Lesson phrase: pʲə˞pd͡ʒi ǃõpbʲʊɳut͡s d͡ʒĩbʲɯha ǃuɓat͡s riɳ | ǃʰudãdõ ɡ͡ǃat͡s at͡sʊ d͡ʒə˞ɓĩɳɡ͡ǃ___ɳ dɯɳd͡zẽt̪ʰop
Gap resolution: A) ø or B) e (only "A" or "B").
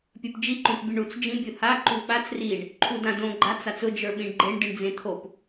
B